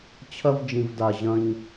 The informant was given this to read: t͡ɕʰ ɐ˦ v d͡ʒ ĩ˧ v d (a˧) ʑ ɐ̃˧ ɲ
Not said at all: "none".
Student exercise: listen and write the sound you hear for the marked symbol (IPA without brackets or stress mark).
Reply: a˧